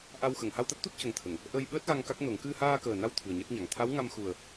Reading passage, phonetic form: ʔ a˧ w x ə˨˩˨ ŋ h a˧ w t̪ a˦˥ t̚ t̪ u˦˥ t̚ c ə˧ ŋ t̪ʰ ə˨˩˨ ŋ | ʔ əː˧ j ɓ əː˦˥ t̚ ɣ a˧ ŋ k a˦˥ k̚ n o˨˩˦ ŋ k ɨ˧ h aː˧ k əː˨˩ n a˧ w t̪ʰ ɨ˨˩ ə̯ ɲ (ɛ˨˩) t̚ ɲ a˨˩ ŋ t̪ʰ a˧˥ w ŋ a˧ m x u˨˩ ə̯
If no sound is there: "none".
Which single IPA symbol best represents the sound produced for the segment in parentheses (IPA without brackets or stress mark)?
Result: ɛ˦˥